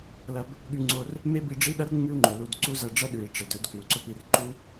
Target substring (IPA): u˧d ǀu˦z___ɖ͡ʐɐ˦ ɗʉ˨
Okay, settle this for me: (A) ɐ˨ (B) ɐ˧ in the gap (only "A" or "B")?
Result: B